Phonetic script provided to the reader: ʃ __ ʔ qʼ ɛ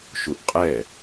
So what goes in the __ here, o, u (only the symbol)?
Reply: u